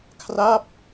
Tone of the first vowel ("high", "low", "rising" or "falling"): falling